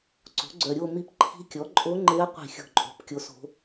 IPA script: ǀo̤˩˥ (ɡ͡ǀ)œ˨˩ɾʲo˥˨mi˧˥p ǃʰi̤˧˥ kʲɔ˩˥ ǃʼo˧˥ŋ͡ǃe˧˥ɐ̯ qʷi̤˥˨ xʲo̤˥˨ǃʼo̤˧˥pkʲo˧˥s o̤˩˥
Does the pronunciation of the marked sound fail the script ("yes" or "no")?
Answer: no